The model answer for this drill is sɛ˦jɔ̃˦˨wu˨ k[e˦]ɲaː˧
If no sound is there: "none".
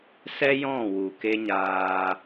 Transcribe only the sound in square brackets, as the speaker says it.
e˦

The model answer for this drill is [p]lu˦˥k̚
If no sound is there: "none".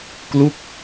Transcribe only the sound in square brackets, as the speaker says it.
k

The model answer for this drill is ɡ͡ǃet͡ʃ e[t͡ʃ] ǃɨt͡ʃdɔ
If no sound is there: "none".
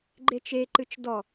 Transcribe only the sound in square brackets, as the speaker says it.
none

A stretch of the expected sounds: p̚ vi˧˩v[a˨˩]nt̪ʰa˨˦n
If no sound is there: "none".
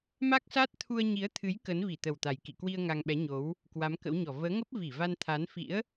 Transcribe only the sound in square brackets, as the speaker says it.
a˧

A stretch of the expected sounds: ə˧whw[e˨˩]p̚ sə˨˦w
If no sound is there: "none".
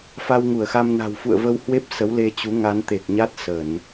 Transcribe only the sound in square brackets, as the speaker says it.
e˦˥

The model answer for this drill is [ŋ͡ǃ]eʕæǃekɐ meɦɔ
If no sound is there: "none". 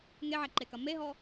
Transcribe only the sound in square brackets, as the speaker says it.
ŋ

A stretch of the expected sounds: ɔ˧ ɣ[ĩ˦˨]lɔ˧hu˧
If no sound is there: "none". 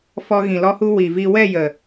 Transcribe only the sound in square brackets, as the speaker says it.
ĩ˨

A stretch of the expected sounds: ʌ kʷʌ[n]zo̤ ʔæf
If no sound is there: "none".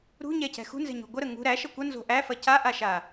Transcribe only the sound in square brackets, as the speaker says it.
n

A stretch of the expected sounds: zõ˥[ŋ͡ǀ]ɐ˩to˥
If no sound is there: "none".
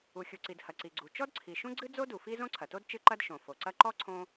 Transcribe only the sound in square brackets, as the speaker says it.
ǀʰ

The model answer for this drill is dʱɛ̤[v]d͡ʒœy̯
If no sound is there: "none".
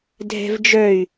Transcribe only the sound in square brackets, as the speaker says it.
v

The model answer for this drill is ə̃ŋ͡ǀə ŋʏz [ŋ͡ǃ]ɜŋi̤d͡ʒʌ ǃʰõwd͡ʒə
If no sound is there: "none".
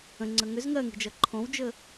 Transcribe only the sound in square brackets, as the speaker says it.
ŋ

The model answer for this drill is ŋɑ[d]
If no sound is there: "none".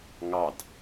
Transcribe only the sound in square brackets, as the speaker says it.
d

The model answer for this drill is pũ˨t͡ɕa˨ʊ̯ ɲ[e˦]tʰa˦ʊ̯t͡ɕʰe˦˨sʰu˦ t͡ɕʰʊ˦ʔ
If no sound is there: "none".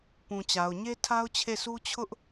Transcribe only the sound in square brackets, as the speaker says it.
e˦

